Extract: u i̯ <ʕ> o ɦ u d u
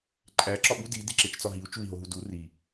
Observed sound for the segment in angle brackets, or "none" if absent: ɦ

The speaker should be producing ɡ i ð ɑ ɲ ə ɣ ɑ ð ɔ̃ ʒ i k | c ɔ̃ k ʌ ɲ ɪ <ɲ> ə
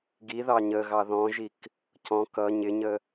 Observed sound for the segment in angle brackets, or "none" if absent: ɲ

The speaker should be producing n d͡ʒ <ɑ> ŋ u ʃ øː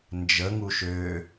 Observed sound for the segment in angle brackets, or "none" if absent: ə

